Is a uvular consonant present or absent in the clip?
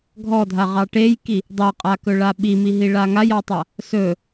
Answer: present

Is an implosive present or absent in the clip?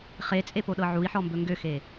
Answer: present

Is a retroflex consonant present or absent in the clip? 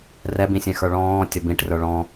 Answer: present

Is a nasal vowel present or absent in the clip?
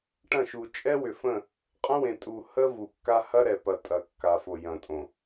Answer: present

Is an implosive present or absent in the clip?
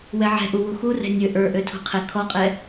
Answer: absent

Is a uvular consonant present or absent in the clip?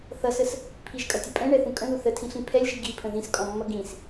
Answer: absent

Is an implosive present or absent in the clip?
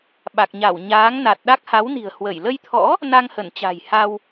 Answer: present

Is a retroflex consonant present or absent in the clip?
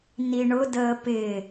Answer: present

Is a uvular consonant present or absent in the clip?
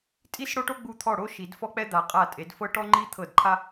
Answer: present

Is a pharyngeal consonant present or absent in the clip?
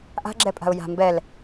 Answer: absent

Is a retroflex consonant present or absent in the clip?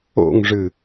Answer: present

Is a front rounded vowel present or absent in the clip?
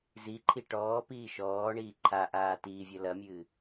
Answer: absent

